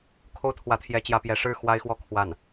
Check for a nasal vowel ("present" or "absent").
absent